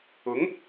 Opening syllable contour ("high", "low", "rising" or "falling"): rising